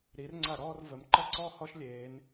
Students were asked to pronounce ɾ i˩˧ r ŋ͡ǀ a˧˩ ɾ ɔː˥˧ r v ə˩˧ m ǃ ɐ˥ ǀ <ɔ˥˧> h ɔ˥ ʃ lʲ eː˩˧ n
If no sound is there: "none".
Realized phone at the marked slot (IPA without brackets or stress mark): ɔ˥˧